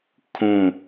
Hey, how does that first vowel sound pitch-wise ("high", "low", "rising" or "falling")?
falling